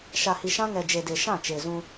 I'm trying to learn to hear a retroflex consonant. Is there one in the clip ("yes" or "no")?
no